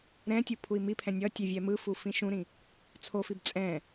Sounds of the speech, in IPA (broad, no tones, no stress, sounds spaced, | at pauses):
ɾ ɛ̃ tʲ u pʰ u i̯ m i pʰ ɛ̃ nʲ ʌ tʲ e vʲ ɛ m ɯ f u f ĩ ʃ ũ ɾ ĩ | t͡sʰ o f i b t͡sʼ ɛ̃